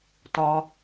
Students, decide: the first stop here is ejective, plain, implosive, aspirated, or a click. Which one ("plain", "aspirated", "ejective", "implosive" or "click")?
plain